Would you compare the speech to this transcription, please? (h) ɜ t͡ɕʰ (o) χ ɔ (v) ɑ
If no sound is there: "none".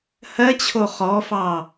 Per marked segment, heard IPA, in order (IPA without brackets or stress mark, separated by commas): h, o, f